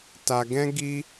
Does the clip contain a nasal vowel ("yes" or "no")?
yes